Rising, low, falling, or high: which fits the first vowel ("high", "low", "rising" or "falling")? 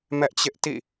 high